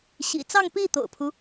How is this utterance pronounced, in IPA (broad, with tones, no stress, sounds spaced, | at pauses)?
ɕ ḭ˨˩ t͡s ɑ˥˧ ŋ p i˥˩ t̪ o̰˨˩ ʊ̯ pʰ u˦